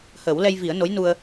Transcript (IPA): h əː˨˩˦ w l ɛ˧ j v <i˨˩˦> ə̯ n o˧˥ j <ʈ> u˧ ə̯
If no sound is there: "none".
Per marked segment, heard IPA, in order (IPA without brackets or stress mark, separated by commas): i˨˩˦, n